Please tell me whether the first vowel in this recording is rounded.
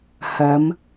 no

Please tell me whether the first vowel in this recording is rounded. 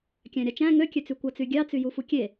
no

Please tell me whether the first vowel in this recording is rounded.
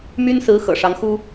yes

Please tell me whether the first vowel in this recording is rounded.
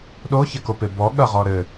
yes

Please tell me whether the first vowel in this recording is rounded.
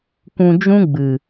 yes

